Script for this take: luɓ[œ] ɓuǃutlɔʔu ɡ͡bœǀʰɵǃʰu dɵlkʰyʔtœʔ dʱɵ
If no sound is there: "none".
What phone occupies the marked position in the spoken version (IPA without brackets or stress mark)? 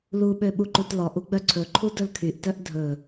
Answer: ø